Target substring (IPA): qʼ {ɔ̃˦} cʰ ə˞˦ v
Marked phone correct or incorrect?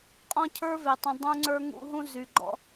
correct